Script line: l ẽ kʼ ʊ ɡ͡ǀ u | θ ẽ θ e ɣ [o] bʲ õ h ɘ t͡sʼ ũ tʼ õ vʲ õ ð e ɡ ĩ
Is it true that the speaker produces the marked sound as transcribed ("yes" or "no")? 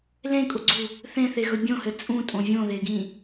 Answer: no